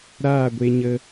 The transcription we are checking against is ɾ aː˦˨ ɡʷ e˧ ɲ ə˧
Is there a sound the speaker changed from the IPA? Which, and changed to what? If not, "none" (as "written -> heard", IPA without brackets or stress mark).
none